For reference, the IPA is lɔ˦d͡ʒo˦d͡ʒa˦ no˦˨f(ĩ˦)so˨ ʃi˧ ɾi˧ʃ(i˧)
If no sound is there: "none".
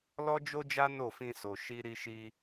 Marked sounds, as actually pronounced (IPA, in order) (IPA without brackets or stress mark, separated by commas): ĩ˧, i˧